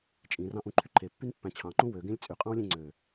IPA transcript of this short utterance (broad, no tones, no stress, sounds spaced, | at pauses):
t͡ʃʼ ĩ r ɑ̃ ʔ ũ ǃʰ y ǃʰ e pː y n pː æ̃ t͡ɕʰ ɑ̃ ǃ ũ w ø ɡ ẽ lʲ t͡sʼ y qʼ ɑ̃ w lʲ ẽ ŋ͡ǀ ø